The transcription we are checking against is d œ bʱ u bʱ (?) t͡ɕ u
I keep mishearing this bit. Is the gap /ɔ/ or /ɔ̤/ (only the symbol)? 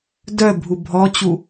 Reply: ɔ